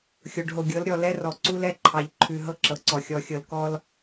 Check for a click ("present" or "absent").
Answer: present